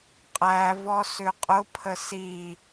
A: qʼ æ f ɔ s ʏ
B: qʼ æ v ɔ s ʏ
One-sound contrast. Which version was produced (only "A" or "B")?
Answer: B